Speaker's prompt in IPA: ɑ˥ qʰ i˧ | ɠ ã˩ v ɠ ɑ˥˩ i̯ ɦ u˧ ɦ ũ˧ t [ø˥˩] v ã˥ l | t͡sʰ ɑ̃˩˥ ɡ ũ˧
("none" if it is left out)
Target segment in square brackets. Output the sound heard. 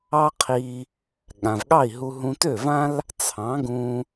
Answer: ø˥˩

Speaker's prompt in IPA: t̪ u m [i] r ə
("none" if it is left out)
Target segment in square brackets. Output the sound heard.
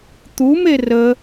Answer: e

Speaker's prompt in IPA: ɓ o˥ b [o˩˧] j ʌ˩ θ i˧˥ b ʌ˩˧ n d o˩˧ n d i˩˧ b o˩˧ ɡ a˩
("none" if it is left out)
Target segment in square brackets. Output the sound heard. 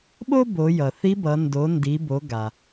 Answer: o˩˧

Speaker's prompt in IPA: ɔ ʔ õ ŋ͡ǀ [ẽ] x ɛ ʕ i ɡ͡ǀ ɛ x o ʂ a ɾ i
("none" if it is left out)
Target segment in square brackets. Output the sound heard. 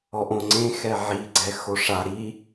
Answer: ẽ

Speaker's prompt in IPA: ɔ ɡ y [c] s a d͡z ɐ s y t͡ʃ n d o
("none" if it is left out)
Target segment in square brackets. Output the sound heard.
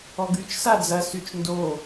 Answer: t͡ʃ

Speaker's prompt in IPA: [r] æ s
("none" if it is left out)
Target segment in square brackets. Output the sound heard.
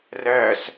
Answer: r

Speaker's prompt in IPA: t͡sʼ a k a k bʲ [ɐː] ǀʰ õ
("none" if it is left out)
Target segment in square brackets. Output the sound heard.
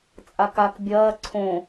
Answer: ɐː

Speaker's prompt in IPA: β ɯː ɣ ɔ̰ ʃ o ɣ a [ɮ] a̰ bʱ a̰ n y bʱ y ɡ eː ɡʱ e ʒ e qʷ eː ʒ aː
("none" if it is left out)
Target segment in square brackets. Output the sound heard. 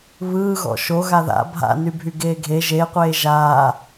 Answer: ð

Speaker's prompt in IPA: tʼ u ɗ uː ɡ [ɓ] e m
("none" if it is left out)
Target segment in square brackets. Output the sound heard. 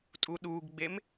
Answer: ɡ͡b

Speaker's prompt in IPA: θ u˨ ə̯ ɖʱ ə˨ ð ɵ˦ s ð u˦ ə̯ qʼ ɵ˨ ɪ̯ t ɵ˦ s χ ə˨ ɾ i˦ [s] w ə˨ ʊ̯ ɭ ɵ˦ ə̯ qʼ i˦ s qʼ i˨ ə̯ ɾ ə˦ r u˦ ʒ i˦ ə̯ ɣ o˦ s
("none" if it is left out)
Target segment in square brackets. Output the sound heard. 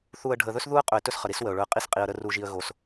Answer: s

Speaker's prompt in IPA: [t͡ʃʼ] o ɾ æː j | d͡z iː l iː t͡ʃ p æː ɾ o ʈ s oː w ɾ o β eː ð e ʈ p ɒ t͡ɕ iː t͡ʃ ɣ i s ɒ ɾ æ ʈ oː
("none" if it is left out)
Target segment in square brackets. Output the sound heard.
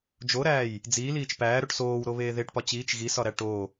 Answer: d͡ʒ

